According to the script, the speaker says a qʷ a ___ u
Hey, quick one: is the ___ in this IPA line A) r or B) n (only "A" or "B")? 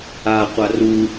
A